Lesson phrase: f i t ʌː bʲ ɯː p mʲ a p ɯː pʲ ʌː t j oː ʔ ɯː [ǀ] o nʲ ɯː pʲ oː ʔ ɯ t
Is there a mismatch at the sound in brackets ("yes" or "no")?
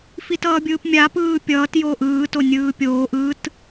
yes